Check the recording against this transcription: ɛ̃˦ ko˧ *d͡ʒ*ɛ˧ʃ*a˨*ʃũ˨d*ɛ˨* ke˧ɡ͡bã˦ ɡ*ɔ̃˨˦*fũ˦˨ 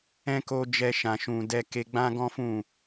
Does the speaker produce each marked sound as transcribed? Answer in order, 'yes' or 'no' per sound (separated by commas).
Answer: yes, no, no, no